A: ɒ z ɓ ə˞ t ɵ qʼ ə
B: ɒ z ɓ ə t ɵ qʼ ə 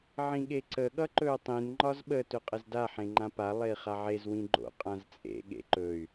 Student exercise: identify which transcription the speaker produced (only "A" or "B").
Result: B